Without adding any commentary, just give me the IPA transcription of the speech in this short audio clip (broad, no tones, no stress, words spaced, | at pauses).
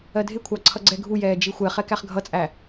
ɜdʱɪkʷʰɑ ǀʰʌɡ͡ǀɛɡʱujɛː d͡ʒixʷɛχɛ kæχɡʱʌt͡sʼæ